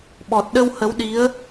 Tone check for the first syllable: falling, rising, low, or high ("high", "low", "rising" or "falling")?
low